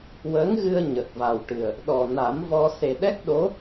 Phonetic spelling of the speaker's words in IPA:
w əː˧˥ ŋ ɣ ɨ˧ ə̯ ɲ ə˨˩ k̚ v a˨˩ w ʈ ɨ˨˩ ə̯ | ɗ ɔ˨˩ n a˨˩˦ m v ɔ˧ s e˨˩ ɗ ɛ˦˥ k̚ ɗ o˧˥

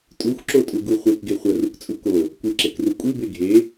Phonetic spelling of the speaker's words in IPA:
tʼ u xʷ ǁ o tʼ u ɡ u χʷ e k ɡ e χʷ ɐ r u k t͡sʼ u k o | kʷ ɨ ǁ e k r u kʷʼ ɨ b e ɡʱ e

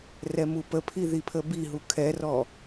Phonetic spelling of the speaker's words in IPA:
r ɛ m u p ə pʰ i ð i pʰ ə b i ɦ u kʰ ɛ r ɔ

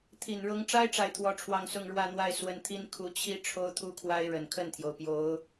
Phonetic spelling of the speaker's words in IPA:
t̪ʰ i˨˩ n ɻ ʊ˧˥ ŋ ʈ͡ʂ a˥ ɪ̯ ʈ͡ʂ a˥˧ ɪ̯ t̪ʰ w ɔ˥˧ ʈ͡ʂʰ w ɑ˥˧ ŋ s ʊ˥˧ ŋ ɻ w ä˥˧ n̪ w a˥˩ ɪ̯ s w ə˧˥ n t̪ʰ i˥ n kʰ u˧˥ t͡ɕʰ i˥ ʈ͡ʂʰ o˥ ʊ̯ t̪ʰ u˥ kʰ w a˥ ɪ̯ ɻ ə˨˩ n kʰ ə˥˩ n t̪ʰ j o˩ ʊ̯ p j o˧˥ ʊ̯

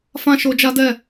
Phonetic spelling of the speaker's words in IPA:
f ã˦ ʃ o˧ d͡ʒ a˦ d ɛ˦˨

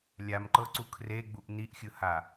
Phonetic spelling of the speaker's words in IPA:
lʲ a m ǃ ɤ ǀ u kʰ r e ɡ͡b u ʔ n i ʔ xʲ ɯ h a

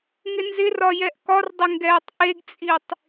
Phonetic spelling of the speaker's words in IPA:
ŋ ɪ n z ɪ r ɒ j ɛ ʔ k ɒ r dˤ ɪ ŋ ɡ ɛː tˤ ʔ e ɡ t͡sʼ i tˤ

